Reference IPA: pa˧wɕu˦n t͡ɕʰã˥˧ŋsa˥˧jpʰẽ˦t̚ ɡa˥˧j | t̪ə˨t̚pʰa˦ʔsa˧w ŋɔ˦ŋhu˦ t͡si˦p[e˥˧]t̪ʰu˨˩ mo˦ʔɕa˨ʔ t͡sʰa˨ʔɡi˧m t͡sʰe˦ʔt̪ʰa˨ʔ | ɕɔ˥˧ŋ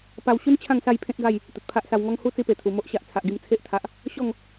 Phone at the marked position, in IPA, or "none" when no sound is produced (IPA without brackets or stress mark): e˨˩